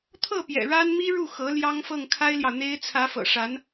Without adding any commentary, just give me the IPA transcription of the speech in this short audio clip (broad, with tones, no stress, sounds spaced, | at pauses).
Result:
t̪ʰ ɤ˥˩ p j ɛ̰˨˩ ɻ a˥ n m i˥ ɻ u˥˩ x ɤ˧˥ l j ɑ˥ ŋ f ɤ˥˩ ŋ kʰ a˥ ɪ̯ l j ɑ˨ ʊ̯ n̪ e˥ ɪ̯ t͡sʰ ä˧˥ f ɤ̰˨˩ ʂ a˧˥ n